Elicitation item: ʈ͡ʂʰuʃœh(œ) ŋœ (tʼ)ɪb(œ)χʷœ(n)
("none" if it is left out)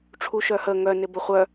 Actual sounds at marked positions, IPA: ə, n, ə, none

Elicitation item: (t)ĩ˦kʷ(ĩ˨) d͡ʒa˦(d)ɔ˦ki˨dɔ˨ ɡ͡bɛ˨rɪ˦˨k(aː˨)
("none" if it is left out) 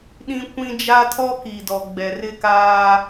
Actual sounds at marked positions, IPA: ɗ, ĩ˦, tʰ, aː˦

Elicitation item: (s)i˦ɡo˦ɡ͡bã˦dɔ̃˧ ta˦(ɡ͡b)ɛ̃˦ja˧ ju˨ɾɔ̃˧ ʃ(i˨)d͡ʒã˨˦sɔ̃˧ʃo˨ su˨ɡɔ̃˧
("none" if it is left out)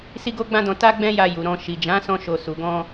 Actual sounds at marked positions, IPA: s, ɡ͡b, i˨

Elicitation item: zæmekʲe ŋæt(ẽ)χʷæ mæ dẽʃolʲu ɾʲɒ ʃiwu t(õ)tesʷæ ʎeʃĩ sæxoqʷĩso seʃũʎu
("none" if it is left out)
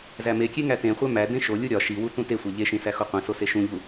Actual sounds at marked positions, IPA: ẽ, ũ

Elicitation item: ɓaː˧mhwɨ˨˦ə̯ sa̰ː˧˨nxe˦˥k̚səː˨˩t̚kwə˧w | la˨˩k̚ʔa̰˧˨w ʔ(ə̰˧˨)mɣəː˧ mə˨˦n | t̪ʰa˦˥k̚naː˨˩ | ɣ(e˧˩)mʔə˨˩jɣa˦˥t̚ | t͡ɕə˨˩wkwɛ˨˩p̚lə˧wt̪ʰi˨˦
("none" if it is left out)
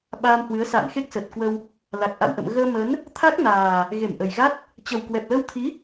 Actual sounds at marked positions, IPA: ə̰˧˨, e˧˩

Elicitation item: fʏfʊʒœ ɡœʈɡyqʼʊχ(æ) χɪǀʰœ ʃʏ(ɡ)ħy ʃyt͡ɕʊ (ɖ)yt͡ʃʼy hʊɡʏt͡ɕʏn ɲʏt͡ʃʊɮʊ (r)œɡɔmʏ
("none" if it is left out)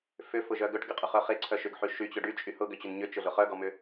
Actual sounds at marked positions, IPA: œ, ɡ, ɖ, χ

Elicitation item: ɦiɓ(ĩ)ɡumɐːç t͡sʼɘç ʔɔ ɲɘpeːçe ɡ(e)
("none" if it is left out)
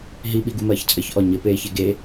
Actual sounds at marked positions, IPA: i, e

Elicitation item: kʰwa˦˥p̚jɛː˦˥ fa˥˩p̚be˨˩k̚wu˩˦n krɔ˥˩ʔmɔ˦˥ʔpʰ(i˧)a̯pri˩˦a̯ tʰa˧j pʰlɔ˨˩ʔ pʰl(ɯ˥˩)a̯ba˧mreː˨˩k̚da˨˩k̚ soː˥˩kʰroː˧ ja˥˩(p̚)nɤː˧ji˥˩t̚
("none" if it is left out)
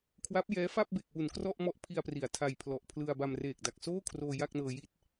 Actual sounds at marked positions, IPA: i˧, ɯ˧, k̚

